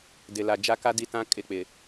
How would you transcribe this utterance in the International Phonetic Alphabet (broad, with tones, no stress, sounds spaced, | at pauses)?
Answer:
d ɪ˨ l a˨ d͡ʒ a˦ k a˦ d i˦˨ t ã˦ kʼ ɪ˦˨ k͡p ɪ˨